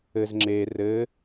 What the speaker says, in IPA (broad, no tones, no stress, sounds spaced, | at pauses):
ɘ z ŋ͡ǁ e r ɘ